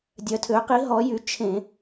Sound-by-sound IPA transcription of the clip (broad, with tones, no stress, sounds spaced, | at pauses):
dʲ œ˩˧ tʰ ø˩˧ q i˩˥ ɦ ɔ˩˥ j y˩˥ t͡ʃʰ ẽ˧˩˧